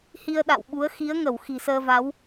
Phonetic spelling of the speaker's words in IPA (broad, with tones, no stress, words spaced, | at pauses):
hi˧ə̯ɗa̰˧˨wɓu˨˦ə̯ xi˨˦ə̯ŋə˧˩w xi̤˨˩səː˧va˨˦w